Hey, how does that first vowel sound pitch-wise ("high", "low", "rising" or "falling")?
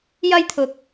high